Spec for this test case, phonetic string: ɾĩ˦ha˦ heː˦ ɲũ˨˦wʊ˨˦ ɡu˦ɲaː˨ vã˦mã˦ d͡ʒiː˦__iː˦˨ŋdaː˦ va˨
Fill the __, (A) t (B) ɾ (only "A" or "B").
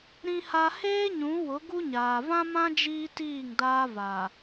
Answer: A